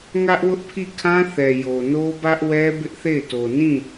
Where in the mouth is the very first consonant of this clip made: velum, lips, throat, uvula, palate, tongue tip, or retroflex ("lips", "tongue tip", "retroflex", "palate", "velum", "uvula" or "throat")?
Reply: velum